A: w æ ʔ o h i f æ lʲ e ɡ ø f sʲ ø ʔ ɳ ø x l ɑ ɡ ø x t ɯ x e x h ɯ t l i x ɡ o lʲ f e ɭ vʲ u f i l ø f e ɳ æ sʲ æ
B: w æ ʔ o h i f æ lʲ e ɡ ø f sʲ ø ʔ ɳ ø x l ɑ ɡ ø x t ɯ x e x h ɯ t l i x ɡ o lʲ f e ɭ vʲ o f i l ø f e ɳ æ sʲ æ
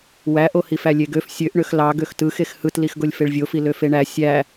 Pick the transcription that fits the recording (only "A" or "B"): B